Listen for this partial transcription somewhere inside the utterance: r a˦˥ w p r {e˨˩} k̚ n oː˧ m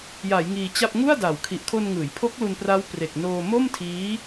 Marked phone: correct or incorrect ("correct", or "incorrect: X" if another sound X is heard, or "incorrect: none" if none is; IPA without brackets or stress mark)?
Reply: correct